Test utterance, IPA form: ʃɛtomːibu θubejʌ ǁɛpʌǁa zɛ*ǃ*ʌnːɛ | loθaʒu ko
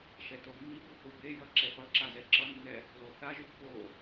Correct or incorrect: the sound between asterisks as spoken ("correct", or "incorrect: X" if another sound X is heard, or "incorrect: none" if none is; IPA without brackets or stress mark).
incorrect: ǁ